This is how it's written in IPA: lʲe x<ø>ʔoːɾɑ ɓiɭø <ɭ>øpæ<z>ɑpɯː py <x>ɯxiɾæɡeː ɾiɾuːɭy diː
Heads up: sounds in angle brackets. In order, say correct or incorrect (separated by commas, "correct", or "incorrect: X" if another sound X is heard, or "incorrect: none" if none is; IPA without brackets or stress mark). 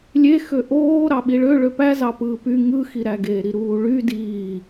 correct, correct, correct, incorrect: ŋ